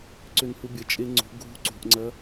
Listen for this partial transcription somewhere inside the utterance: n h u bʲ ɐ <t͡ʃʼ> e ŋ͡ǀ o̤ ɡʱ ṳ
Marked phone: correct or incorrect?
correct